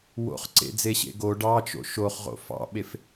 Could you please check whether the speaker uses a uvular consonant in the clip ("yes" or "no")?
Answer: yes